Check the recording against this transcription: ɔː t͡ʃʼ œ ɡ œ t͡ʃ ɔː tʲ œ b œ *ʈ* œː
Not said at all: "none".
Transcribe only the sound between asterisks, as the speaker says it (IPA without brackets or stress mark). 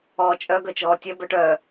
ʈ